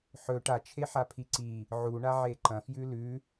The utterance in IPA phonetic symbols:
ħ ɵ ʈ a t͡ʃʰ e ħ a pʰ i ǀ i | ʕ u ɳ a ʕ e ǃ ɐ̃ f j ʉ l ʉ

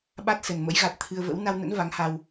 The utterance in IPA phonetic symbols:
ɓ a˦˥ t̚ s ə˨˩ n m ə̰˧˥ j ɣ a˨˩ t̚ t̪ʰ ɨ˧ ə̯ v ə̰˧˥ w n a˧ w n ə̰˧˥ n v a˨˦ ŋ h a˧ w

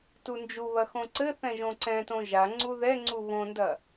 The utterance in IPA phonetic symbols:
t u n d͡ʒ u β ɐ x õ ǀ ɘ θ ɛ̃ ʒ õ ǀ ɛ̃ t õ ʒ a ŋ͡ǀ u ð ɛ ŋ͡ǀ u β õ n d ɐ

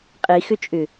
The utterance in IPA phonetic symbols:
qʼ i x ʏ t͡ʃʼ ʏ

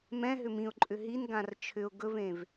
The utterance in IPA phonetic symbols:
m ɛ̃ ɦ ʏ m ĩ ʊ̯ ǃʼ ʏ ɦ i n ɡ ã r t͡ʃʰ ʏ ʊ̯ ɡ ɵ v ẽ v

